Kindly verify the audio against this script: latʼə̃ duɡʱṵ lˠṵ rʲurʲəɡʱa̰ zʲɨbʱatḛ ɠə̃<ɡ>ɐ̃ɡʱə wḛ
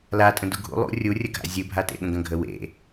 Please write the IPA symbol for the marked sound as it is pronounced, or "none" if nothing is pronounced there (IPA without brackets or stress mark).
ɡ